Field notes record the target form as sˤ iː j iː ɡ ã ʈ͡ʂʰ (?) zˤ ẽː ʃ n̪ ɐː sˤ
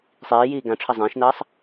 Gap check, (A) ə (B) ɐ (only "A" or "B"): B